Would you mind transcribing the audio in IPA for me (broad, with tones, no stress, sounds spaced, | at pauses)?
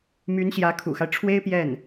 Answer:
m y˧˥ n ɕ j ä˧˥ kʰ ṵ˨˩ x a˦ ɪ̯ ʈ͡ʂʰ w e˥ ɪ̯ p j ɛ˥˩ n